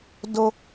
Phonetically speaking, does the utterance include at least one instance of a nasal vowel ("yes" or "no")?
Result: no